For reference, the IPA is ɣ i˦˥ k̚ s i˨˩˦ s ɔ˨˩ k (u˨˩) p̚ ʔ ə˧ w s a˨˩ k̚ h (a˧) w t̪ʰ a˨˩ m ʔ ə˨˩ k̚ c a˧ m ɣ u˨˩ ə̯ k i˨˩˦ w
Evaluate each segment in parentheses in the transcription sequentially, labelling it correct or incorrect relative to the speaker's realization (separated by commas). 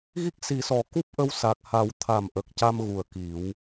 incorrect, incorrect